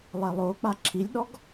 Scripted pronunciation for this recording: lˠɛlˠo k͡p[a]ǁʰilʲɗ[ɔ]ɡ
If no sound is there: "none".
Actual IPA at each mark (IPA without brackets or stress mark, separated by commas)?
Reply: a, ɔ